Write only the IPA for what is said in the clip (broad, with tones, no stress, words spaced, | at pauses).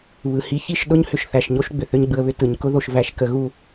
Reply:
βɯ˨hi˧çi˦˨ʃ ɗʊ˦ɲhʏ˧ʃ θæ˨ʃɲo˦ʃ ɡ͡bʏ˨θʏ˦ɲɡ͡bɯ˧ə̯βʏ˦ tɯ˨ɲkʊ˦ðo˧ʃvæ˧ʃ kə˧ɣu˦